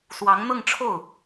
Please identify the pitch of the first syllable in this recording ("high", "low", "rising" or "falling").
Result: rising